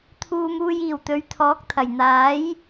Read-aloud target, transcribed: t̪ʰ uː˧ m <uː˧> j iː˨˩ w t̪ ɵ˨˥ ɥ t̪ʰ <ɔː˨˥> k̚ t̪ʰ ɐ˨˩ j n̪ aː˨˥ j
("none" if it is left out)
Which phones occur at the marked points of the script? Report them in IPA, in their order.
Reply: uː˧, ɔː˨˥

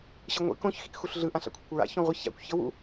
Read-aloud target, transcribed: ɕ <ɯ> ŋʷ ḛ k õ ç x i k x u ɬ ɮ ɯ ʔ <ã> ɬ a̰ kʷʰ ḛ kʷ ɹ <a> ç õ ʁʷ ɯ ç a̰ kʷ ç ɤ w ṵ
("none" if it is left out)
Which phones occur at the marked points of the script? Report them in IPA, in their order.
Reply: ɯ, ã, a̰

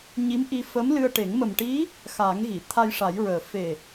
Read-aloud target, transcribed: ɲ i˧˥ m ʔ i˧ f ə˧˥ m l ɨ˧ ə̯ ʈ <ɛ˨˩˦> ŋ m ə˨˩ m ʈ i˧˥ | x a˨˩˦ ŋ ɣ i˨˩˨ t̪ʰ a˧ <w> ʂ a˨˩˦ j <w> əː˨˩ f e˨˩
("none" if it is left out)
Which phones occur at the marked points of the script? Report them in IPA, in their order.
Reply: e˨˩˦, j, ɹ

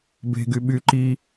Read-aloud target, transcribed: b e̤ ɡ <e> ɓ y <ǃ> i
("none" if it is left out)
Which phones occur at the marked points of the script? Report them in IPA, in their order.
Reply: y, ǃ

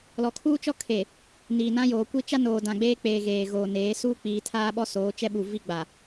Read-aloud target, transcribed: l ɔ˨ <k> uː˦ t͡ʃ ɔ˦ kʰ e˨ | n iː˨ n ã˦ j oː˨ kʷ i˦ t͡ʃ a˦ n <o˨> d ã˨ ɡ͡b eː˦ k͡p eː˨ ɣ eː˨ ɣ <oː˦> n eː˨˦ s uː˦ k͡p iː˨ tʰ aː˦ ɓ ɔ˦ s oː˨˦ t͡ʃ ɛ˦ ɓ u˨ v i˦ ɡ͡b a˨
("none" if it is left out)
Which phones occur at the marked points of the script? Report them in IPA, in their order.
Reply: kʰ, oː˨, oː˨

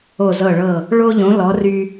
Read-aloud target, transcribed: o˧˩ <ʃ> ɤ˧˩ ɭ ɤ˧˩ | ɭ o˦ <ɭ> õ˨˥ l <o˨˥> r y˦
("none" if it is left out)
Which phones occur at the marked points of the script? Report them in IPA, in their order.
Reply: z, ʎ, ɔ˨˥

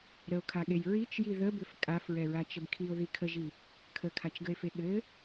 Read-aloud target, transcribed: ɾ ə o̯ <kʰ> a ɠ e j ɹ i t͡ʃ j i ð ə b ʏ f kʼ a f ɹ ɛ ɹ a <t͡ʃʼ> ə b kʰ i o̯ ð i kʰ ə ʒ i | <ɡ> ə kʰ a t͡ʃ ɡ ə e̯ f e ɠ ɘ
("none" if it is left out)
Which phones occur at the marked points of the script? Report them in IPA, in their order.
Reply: kʰ, t͡ʃ, kʰ

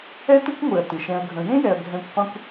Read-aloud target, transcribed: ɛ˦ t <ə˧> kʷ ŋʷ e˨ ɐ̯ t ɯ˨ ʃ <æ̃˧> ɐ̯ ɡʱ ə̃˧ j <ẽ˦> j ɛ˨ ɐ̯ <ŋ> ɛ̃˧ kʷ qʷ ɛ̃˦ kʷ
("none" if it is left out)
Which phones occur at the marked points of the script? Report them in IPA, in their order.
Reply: ə˦, ɛ̃˧, ẽ˦, ɡʱ

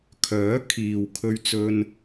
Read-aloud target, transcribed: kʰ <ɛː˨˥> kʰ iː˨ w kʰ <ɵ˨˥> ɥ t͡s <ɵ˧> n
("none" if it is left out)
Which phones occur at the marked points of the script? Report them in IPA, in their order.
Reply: œː˨˥, ɵ˧, ɵ˧

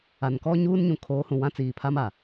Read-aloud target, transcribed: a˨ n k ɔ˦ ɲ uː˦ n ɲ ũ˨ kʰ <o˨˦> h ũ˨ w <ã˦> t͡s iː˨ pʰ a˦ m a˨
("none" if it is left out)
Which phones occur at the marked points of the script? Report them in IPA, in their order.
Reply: oː˨˦, ã˦

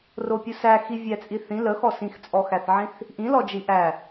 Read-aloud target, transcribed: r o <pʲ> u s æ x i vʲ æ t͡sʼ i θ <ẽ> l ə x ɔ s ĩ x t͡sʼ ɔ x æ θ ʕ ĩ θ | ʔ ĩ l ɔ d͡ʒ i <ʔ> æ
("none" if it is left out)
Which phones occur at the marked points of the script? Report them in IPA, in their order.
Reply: pʲ, ĩ, ʔ

